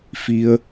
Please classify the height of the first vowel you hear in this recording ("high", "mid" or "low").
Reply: high